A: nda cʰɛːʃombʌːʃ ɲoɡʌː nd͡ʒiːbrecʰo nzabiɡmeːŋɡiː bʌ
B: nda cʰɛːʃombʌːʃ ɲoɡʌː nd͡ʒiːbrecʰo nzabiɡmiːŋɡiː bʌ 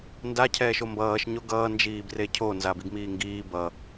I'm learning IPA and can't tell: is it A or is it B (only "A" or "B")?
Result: B